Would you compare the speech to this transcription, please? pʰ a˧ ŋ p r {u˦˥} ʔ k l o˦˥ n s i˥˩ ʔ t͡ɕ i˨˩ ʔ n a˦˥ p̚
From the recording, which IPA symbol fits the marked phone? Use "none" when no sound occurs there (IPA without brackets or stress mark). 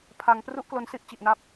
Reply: u˦˥